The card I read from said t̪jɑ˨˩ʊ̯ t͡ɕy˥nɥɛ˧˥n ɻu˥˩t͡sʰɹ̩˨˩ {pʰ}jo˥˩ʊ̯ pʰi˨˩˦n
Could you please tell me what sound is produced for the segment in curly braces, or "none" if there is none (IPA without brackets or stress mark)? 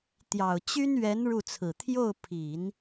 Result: t̪ʰ